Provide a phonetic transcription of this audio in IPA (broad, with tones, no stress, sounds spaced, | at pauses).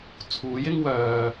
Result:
t͡sʰ uː˨˥ j ɪ˥ ŋ w œː˨